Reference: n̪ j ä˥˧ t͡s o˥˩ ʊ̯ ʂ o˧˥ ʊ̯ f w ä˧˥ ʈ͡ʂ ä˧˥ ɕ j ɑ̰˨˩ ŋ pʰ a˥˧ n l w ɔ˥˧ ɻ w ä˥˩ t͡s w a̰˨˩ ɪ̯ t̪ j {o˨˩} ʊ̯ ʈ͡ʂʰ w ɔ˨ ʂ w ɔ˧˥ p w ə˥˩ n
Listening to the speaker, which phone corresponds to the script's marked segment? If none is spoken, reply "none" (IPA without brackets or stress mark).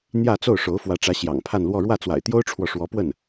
o˥